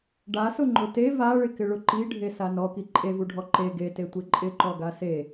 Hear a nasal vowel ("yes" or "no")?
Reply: no